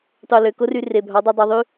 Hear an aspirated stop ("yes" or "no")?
no